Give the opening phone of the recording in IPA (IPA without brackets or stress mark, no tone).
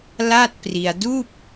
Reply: l